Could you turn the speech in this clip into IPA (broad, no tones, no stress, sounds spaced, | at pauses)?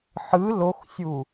ħ ɯ l o x sʲ u